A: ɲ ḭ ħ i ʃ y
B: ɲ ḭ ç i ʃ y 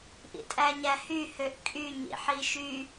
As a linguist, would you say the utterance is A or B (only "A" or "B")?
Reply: A